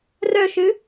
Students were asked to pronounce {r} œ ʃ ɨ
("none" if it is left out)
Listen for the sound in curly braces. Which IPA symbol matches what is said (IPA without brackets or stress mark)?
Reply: r